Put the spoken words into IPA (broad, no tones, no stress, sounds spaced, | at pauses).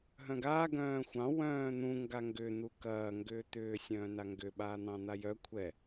ɦ œ̃ ɡ aː ɡ œ̃ː xʷ ɑ̃ w œ̃ː n̪ ũ ŋ ɡ a ŋ ɡ ʏ n̪ u k ɐː ŋ ɡ ʏː t̪ ʏː sʲ œ̃ː n a ŋ ɡ ʏ ɓ aː n̪ ɑ̃ n̪ a j œ kʷʰ ɛ